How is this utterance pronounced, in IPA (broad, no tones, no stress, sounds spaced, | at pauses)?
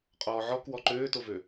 qʼ ɔː ʕ ɔ k w ɔ ǃ øː t o v ø